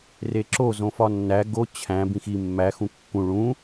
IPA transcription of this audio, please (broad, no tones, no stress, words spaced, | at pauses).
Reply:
reǁo zõfɒnːæ ɡo t͡ɕʰæ̃ bĩxi mːæ xũkːũ ɭũ